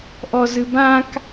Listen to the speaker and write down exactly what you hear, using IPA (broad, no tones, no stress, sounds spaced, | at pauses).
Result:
ʔ ɔ z ɨ b ã k